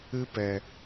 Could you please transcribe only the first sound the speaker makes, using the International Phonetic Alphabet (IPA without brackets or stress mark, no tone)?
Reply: ɨ